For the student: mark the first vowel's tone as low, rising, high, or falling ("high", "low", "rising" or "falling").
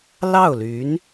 falling